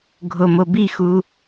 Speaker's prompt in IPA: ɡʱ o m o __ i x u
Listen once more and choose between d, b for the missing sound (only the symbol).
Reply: b